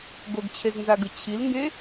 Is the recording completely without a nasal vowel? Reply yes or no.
no